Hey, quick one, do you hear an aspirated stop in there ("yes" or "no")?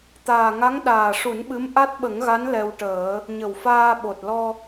no